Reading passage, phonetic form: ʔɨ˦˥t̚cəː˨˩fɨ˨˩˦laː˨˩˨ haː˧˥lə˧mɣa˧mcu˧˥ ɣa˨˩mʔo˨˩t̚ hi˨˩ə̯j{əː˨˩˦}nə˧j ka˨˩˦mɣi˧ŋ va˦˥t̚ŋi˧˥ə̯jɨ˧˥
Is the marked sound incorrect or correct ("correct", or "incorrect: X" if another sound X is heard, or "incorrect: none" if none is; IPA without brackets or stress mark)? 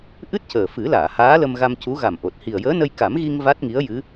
incorrect: əː˧˥